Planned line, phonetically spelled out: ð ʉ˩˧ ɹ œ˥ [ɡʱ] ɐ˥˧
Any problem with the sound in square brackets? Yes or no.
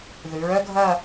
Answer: no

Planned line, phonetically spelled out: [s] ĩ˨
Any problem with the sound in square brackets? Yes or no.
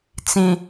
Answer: yes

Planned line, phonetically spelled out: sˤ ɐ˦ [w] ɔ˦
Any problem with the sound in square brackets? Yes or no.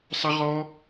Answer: yes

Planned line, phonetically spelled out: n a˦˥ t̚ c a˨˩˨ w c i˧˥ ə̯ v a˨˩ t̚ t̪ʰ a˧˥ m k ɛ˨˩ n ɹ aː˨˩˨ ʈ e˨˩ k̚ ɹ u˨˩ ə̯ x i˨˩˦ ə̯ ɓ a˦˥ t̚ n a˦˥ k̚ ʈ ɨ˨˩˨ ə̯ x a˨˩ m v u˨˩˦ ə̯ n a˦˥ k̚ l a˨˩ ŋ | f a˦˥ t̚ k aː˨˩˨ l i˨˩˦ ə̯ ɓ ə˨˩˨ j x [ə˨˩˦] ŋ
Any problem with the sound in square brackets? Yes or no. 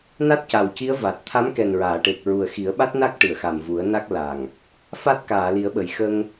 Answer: yes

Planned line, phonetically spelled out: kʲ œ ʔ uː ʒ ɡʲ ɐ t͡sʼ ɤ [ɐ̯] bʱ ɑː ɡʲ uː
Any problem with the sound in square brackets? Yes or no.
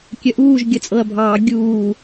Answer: no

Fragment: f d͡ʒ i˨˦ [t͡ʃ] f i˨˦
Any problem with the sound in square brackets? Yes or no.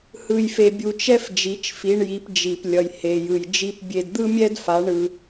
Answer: no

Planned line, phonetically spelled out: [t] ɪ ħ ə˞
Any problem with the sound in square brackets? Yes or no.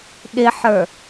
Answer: yes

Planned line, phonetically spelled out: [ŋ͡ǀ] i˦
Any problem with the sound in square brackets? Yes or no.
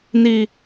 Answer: yes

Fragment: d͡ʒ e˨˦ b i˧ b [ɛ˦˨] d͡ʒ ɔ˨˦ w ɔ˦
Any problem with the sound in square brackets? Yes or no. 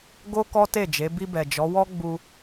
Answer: yes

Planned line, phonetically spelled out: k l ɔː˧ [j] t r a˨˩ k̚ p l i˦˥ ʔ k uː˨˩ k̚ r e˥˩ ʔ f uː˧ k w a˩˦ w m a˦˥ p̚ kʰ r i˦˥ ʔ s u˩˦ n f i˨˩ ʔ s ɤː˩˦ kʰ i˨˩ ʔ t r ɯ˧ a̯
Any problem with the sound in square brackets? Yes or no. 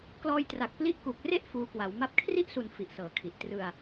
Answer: no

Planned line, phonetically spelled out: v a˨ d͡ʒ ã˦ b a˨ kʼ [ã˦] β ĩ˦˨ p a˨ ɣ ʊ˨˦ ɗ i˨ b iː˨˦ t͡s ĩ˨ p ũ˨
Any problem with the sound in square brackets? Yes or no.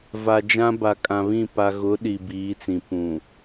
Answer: yes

